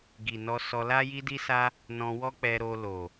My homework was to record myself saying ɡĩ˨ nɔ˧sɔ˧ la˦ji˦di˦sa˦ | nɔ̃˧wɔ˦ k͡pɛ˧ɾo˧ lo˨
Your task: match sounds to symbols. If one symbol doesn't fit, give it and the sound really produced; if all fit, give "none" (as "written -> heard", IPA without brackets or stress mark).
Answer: ĩ˨ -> i˨